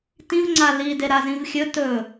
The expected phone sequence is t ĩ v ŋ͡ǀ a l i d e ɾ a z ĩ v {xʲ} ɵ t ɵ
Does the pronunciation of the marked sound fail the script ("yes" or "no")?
no